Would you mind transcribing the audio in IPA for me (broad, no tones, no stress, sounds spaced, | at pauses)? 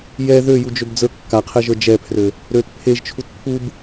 j ɛ ð ø j u d͡ʒ ø b d͡z ə˞ kː a qʰ ɛ ʒ ə˞ d͡ʒ ɛ pʰ r ø | ɾ ø t pʰ e ʒ t͡ʃʰ u t pʰ u b